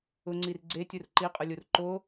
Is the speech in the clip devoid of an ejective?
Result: no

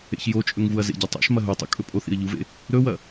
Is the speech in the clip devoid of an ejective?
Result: no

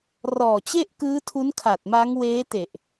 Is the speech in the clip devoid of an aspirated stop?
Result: no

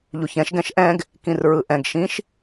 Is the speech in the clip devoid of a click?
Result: yes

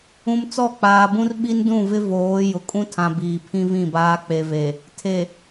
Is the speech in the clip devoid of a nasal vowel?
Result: no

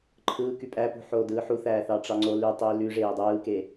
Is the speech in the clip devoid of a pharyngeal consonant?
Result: no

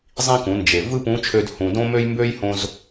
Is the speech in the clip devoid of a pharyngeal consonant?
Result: yes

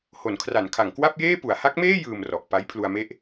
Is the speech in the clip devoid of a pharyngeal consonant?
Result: yes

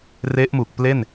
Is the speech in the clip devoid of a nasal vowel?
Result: yes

